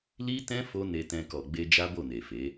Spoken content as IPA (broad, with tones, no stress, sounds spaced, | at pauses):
l i˦ t ɛ̃˦ f o˦ n e˧ t ɛ̃˧ k ɔ˨ ɡ͡b e˧ d͡ʒ a˦ b o˦˨ n e˨ f e˨˦